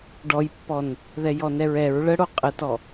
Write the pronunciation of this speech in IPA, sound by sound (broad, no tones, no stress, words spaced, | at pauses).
ɖɔjpːɔn | ðɛjɔnɛɹɛɹ ɭəɽo qʼətɔ